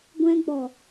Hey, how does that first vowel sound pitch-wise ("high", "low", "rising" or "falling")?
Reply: high